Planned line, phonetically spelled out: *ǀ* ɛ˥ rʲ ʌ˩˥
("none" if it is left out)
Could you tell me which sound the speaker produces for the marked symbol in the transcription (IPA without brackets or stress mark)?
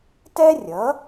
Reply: t